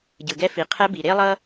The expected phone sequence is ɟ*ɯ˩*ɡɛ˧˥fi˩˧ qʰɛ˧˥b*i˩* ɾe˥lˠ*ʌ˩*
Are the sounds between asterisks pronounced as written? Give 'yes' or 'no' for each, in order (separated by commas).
yes, yes, no